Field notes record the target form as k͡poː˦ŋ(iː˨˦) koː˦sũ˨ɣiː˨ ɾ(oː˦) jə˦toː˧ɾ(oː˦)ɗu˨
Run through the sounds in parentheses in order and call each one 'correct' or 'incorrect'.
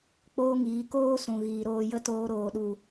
correct, incorrect, incorrect

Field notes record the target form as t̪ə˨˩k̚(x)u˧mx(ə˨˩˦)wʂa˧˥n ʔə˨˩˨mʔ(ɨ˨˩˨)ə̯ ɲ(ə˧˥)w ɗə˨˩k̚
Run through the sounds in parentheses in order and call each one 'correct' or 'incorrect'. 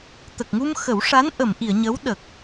incorrect, correct, incorrect, correct

